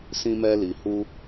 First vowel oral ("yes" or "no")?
no